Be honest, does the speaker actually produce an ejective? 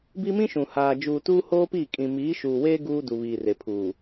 yes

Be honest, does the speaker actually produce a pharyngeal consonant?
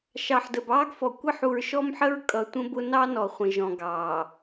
yes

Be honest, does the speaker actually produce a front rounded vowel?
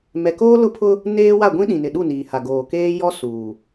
no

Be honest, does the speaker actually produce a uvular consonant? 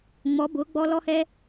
no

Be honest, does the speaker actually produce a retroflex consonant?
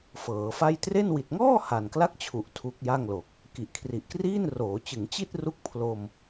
no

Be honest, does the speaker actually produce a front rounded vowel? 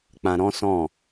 no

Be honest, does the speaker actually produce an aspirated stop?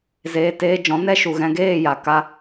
no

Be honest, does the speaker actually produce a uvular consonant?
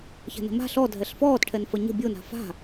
no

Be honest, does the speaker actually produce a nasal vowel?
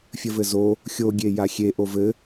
no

